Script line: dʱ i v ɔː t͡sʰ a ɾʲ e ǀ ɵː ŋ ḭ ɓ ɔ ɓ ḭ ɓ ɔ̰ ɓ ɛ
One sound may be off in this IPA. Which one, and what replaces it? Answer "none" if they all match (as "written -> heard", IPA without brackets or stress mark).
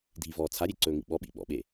ɛ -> e